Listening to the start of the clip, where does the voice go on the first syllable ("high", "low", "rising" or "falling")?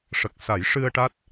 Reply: low